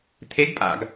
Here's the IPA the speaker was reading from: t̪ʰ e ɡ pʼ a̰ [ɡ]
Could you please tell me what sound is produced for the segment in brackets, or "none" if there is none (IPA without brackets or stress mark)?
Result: ɡ